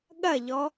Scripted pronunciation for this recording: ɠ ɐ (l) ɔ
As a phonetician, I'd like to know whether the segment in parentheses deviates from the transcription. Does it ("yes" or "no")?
yes